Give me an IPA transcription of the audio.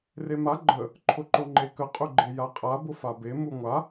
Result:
rema ɡ͡ǃə | ǃʰʊǃʊŋ͡ǃekə qʼʊɡ͡ǃejaqʼa bʊfabe muŋʷa

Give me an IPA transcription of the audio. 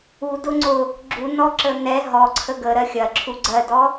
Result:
udʊ ŋ͡ǀʊ | ɡ͡ǁunɔǁə nɛ ɦɔǀʰə ɡəɾɜ xʲɐǁʰu ɡ͡ǀɜdɔ

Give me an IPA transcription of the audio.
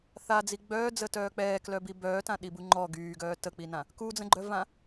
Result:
θad͡zi ɡ͡bœːd͡zətœː k͡pɛːklœbi bœːtãɗibu ŋ͡ǃɔ ɡyːɡœː tək͡pinã | kud͡zə̃ɡ͡ǃœvã

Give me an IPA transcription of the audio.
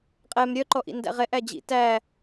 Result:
qʼɛm ɾʲœǃɔʔḭndæ̰ ʁɛʔæ d͡ʑḭ tæ

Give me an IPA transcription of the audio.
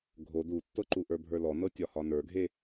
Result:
ɡʱod utːɤǃuʔə˞ bʱə˞lɔnɤ tʲɒhɒnə˞ɡʱe

